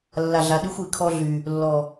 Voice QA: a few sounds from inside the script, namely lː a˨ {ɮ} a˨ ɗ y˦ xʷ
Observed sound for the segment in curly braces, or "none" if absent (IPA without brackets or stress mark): ɮ